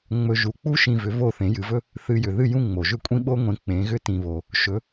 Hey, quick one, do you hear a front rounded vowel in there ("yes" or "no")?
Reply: yes